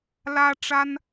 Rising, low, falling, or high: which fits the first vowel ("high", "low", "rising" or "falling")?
high